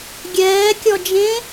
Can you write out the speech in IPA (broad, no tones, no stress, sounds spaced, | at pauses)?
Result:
ɡʲ ɛː kʲ ɔ d͡ʒ ẽ